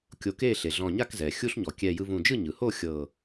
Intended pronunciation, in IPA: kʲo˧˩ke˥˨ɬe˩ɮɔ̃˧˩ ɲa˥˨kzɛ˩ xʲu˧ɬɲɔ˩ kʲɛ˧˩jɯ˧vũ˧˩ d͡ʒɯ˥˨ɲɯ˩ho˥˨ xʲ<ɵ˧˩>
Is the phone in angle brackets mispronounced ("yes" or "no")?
yes